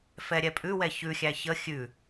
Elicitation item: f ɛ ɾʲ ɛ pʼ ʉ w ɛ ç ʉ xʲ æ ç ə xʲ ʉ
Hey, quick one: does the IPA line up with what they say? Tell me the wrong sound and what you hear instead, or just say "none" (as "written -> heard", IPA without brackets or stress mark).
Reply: none